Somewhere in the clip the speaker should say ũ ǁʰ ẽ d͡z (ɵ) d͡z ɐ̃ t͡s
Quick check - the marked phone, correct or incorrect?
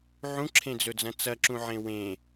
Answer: correct